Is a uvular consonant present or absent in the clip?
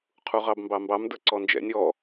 present